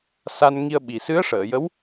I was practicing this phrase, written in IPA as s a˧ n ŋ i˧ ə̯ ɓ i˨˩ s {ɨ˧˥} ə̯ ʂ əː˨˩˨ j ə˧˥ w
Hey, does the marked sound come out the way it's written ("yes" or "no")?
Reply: yes